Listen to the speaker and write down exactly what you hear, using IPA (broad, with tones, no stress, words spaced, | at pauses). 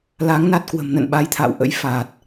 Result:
la˨˦ŋ na˦˥t̚kwə̤˨˩m nə̰˧˨nɓa˨˦jt̪ʰa̰ː˧˨w ʔə̰˧˥j fa˨˩t̚